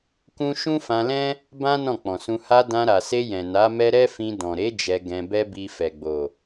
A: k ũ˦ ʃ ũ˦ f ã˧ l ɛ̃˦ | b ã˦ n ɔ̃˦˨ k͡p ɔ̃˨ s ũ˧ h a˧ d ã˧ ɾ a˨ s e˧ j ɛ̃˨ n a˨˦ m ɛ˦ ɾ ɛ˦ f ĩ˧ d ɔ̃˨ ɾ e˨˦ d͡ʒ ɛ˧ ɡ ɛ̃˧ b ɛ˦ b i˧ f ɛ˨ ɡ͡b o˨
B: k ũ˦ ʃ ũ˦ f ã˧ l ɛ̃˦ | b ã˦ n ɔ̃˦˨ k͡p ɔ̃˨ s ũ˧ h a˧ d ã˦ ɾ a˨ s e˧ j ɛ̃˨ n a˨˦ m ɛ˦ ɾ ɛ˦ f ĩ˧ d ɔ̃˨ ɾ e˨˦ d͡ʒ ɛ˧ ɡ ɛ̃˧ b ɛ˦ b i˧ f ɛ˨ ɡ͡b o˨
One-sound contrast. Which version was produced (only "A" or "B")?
A